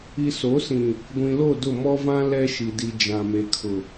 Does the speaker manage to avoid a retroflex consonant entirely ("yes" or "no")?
yes